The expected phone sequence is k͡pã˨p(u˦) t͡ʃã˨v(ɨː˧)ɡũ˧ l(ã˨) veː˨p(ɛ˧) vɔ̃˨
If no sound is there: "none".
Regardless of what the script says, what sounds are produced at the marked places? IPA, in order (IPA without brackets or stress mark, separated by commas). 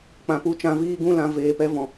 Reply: u˨˦, iː˧, ã˨, ɛ˧